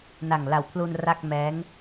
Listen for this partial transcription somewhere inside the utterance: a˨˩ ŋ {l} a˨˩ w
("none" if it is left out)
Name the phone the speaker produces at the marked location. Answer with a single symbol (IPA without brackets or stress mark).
l